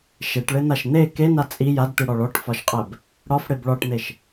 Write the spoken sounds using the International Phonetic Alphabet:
ʃ e ʈ ɭ e n̪ a ʃ n̪ e k e n a t͡sʼ i j a d t̪ i ɽ ɒ ɭ ɔ ʈ f ɒ ʃ qʼ ɛ b | ɽ ɒ f ɽ e b ɭ ɒ ʈ n̪ e ʃ

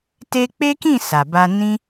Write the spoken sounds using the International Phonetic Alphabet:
t e˧ k͡p e˦ k ĩ˦˨ s a˨ b a˧ n ĩ˧

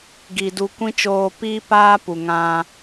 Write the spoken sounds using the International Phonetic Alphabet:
ɡ i˨ d u˧ kʷ ĩ˦ t͡ʃ oː˧ p iː˦ p aː˦ p u˨ ŋ ã˧

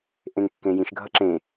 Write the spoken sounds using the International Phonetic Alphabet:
ʔ ẽ ŋ kː ẽ j ĩ ʃ ɡʱ ʌ ǁ ẽ

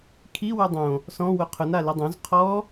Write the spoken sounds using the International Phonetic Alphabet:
kʰ i w u dˤ õ | s ɔ̃ w ʊ qʰ ʊ n a l ɪ dˤ õ z qʰ ɔ

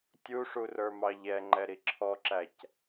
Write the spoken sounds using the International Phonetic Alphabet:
tʲ u ʂ u r ə˞ m ɑ ʎ ɛ ŋ͡ǃ ɛ ɾ i ǁʰ ɔ ǁ æ c

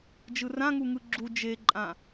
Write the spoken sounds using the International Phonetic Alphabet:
d͡ʒ ɯ r ã ŋ u ŋ ɯ ɡ͡ǁ u d͡ʒ e ǃʼ ã

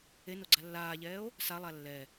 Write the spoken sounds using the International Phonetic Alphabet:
e n o ɡ͡ǀ a lː aː ʎ ɛː o̯ | s a lˠ a lː ɛ

